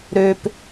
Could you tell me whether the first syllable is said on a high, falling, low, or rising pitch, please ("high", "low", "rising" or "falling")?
low